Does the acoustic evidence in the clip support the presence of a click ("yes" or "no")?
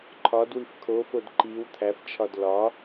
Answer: yes